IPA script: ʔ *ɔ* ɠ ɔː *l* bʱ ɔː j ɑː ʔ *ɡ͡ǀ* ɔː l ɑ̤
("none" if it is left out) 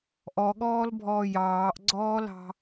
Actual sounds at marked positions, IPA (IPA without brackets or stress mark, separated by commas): ɔ, l, ɡ͡ǀ